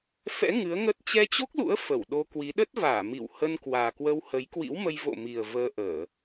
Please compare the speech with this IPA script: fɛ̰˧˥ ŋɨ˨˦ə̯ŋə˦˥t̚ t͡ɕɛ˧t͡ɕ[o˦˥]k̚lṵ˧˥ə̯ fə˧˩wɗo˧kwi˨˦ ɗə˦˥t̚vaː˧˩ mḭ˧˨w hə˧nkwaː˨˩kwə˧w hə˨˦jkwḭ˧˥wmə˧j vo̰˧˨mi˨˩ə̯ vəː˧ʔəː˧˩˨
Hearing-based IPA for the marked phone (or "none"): o˦˥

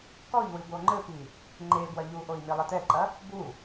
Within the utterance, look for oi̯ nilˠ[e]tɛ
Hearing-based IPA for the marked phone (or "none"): ɘ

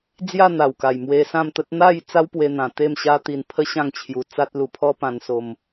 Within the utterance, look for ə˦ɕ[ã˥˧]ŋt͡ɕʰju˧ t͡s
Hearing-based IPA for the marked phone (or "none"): ã˥˧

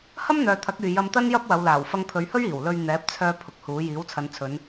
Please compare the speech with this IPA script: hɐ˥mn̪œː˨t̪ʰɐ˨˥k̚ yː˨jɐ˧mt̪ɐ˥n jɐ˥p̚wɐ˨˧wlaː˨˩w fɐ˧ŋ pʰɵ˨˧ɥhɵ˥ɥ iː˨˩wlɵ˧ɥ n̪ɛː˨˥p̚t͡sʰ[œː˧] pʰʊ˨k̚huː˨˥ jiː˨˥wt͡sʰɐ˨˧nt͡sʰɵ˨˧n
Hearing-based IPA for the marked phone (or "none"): œː˧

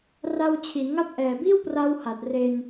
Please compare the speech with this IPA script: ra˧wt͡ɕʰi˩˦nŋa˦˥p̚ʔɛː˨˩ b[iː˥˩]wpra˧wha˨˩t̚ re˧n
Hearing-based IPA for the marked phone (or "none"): iː˥˩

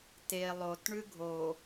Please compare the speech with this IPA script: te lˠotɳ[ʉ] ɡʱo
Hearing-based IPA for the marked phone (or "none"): ʉ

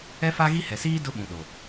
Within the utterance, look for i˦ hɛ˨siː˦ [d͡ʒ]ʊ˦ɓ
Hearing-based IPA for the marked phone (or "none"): d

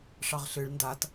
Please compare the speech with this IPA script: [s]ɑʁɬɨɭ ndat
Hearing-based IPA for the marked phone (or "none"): ʂ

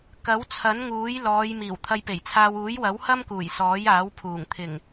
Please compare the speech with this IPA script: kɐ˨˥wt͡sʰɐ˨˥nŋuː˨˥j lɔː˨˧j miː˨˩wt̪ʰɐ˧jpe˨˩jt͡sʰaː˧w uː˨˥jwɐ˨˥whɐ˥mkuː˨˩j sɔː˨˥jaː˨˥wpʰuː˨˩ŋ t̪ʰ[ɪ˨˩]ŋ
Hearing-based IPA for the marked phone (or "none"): ɪ˨˩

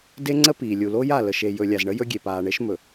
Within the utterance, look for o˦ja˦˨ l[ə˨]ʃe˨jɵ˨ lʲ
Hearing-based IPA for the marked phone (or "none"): ə˨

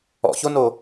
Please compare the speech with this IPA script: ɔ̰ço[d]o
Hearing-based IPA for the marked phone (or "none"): n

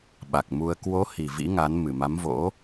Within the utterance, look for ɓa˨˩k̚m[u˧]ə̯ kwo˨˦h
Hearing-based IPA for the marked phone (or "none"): u˧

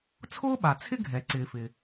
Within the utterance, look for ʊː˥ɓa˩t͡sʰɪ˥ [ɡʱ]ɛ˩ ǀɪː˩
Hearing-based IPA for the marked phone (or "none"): ɡʱ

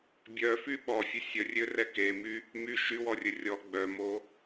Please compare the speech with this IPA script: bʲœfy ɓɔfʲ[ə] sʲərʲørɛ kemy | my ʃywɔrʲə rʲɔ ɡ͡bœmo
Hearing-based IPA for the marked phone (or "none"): ø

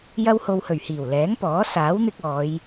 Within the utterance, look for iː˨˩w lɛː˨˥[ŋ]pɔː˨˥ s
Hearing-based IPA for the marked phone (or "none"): ŋ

